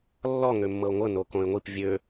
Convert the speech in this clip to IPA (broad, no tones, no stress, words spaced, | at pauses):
lːɔ ŋømːɤo̯ŋʷɤ nokõe̯ŋʷip vʲø